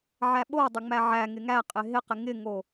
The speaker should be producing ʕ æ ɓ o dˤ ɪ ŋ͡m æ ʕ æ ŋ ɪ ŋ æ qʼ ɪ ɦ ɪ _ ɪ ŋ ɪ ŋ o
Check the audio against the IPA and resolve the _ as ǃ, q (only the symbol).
q